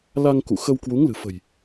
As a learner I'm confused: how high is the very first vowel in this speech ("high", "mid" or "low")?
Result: low